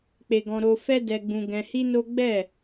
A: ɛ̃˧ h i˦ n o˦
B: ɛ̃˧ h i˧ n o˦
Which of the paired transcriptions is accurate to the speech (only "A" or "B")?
A